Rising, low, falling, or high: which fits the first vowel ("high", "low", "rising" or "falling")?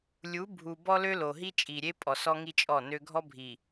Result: rising